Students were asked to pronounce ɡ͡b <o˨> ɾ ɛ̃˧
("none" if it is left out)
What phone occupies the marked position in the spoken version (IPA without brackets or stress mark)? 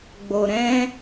o˨